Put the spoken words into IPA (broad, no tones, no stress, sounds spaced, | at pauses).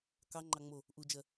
k ɑ ŋ͡ǃ ɑ ŋ͡m o | ʔ u d͡ʒ ɜ